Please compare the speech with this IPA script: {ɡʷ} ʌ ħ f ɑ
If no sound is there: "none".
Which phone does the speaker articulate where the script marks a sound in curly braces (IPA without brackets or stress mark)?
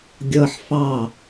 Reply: ɡʲ